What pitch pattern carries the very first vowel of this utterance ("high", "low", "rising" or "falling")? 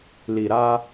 low